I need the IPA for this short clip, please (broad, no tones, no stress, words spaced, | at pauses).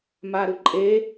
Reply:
maɾɯǃʼe